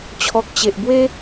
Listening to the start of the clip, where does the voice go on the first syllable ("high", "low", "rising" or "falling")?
low